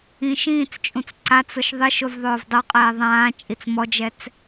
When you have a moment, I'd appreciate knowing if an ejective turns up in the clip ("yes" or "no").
yes